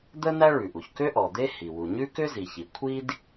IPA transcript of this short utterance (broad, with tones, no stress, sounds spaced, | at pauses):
d̪ ə˥ n̪ æ˥ ɭ ʉ˩ ʔ u˩ ç k ø˥ ʔ ɔ˩ d̪ e˥ h i˩ w u˩ ɲ ʉ˥ k ø˥ z i˩ ç i˩ kʷʰ i˥ d